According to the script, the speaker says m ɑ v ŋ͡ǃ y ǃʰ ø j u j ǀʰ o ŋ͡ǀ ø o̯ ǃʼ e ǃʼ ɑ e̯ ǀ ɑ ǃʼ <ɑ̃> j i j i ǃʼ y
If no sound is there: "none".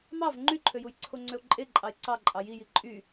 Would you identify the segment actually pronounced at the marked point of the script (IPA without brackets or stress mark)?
ɑ